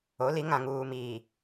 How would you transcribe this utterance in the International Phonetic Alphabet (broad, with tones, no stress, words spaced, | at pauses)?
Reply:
o˨˦li˨˦ ŋã˨ŋuː˨miː˨